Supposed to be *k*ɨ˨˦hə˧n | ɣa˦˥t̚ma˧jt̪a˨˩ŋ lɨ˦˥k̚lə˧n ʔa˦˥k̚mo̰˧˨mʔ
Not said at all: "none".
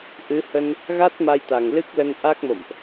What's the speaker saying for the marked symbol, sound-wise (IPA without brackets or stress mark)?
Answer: ʔ